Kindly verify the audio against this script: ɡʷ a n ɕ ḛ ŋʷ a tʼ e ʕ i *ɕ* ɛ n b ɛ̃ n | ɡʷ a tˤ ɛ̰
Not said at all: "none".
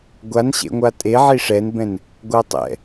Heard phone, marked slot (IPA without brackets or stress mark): ʂ